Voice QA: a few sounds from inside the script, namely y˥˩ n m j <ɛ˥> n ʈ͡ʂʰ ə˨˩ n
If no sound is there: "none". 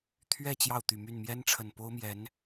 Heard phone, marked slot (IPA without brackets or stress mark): ɛ˥